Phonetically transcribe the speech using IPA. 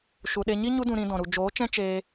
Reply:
ʃu˨ɗe˧ɲi˦ ɲu˦dũ˧ ɾĩ˧ dɔ̃˨ɾu˨ d͡ʒoː˨˦t͡ʃɛ̃˦ t͡ʃeː˧

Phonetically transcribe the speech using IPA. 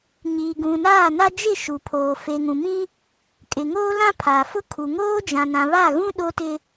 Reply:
ɲiː˨ɡũ˨naː˦˨na˦ d͡ʒɪ˦˨ʃu˨pʰoː˨ fe˨ŋũ˨mĩ˦ | kʼɪ˨ŋoː˦lã˦ pʰa˨fʊ˦ kʰu˨ŋoː˦d͡ʒã˨ nã˨βa˦˨ɣũ˦ ɗo˦tɪ˦

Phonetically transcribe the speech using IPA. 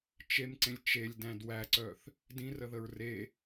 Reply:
t͡ʃemǀẽlʲ t͡ʃelʲdæ̃d wæǀœθ | dĩrəðəɹ re

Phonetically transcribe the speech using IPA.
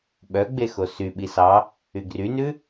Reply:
ɓœɡ͡be xosyɓi sɑ | yɡrynʉ

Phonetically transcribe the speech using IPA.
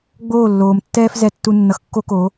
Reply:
ɡ͡boː˦˨lːoː˨mtːɛː˦f zɛ˧tːu˧ nːʌ˧xkːo˦ko˨˦

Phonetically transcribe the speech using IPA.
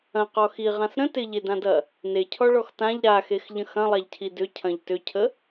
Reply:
ɐ̃qɔ xiʁãs ɾə̃ tɪʎedãdɐ | necʰɔɭɔx tãʎ ɾaxexʎə̃ xɐ̃lˠaʎcʰi dʏcʰɐ̃ʎ tʏcʰə

